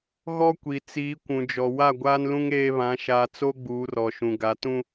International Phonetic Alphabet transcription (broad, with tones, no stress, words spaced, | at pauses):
ɣɔ˦kʷi˨t͡siː˨˦ kʷũ˨d͡ʒɔ˨ wa˦˨ɡʷaː˦nlũ˦ŋ eː˦βã˨˦ ʃaː˨t͡so˦ ɡ͡buː˨˦rɔ˨ʃũ˨ɡa˨˦ tũ˦